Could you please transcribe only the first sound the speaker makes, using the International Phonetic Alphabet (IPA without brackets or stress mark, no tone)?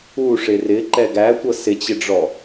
u